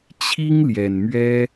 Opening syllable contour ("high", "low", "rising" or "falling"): high